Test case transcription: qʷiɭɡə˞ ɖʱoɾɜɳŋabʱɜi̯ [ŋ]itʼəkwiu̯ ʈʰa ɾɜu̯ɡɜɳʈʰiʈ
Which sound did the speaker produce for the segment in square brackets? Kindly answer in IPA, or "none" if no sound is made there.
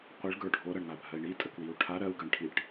ɳ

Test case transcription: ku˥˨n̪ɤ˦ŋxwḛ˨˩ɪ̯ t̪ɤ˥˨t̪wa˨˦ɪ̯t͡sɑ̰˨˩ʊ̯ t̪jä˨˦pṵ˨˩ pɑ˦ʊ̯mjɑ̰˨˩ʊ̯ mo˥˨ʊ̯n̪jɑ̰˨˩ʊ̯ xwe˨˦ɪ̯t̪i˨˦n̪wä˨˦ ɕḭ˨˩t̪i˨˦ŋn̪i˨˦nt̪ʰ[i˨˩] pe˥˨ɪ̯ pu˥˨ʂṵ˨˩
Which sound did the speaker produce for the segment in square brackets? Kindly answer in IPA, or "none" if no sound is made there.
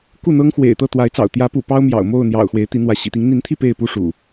i˥˨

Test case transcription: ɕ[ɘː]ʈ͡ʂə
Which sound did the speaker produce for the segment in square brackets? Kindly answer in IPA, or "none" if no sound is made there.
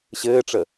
ɘː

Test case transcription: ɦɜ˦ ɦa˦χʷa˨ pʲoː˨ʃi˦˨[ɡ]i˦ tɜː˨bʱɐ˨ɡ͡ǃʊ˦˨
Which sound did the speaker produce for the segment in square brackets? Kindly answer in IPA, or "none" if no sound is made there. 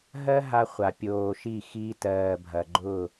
x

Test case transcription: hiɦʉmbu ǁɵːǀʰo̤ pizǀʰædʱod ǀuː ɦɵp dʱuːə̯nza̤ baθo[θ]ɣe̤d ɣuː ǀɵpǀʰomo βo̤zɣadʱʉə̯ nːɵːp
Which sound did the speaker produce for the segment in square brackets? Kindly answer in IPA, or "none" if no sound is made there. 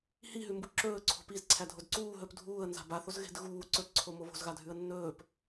z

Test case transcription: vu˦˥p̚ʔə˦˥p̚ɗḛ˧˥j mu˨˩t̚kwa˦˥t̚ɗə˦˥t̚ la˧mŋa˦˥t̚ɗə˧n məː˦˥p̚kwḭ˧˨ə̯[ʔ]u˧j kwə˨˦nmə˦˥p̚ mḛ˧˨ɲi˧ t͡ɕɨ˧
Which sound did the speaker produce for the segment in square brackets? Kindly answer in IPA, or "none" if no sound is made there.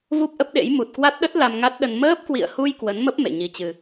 h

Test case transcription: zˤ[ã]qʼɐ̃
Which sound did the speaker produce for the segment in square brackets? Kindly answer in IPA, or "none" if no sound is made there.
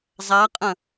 a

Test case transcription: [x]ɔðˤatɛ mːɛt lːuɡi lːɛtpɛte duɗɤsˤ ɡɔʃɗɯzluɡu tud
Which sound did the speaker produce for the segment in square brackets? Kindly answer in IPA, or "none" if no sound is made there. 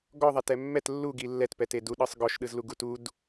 ɡ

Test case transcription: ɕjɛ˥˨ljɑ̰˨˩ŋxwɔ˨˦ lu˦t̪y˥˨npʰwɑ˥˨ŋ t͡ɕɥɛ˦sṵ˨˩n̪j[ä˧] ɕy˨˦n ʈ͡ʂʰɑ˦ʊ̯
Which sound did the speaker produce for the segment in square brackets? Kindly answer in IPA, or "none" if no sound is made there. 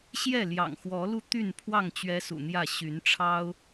ä˥˨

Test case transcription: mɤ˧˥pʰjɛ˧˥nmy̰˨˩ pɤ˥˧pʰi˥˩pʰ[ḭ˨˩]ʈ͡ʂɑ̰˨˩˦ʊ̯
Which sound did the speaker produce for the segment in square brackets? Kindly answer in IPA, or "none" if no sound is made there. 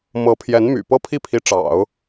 i˧˥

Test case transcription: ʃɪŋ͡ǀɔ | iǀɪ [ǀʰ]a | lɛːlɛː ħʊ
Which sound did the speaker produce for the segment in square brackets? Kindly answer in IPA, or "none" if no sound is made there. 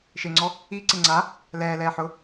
ŋ͡ǀ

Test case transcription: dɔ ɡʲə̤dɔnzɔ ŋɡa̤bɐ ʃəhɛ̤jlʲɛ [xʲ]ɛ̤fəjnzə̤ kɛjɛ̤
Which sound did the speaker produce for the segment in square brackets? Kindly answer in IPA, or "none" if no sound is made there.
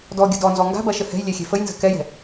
xʲ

